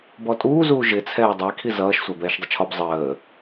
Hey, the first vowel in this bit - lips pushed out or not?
yes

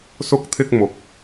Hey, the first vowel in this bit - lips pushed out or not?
yes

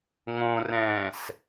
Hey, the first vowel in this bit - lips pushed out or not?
yes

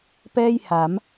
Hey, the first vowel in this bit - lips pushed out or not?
no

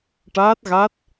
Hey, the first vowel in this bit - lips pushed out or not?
no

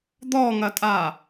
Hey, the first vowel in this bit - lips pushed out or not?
yes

